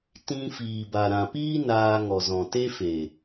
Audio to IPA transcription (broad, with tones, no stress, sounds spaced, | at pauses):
t ĩ˧ f iː˨ b a˨ ɾ ã˨ p iː˦ n aː˧ ŋ ɔ˨ z ɔ̃˨ t e˦ f e˨